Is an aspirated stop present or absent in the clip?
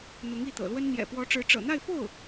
absent